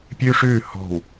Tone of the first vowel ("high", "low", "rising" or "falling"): high